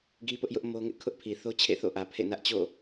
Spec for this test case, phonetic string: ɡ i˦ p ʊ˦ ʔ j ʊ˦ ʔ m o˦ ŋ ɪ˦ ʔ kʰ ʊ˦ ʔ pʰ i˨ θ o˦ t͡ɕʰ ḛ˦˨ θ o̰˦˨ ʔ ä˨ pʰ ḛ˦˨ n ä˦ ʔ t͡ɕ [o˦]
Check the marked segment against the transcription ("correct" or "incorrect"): incorrect